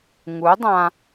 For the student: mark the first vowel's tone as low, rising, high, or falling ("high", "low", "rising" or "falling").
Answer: rising